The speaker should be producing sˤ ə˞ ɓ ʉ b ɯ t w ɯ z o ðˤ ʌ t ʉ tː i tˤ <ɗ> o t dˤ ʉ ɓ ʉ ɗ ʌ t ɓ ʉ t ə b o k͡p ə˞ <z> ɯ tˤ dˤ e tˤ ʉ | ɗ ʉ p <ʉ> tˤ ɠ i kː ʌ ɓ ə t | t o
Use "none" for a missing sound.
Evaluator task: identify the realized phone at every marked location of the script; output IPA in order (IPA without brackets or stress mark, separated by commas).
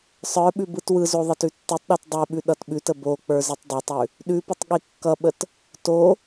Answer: ɗ, z, ə